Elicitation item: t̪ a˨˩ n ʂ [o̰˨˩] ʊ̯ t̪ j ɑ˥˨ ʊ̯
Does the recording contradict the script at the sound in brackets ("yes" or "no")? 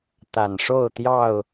yes